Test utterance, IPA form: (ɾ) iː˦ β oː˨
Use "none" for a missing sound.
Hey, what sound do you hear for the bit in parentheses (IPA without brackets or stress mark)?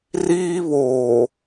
r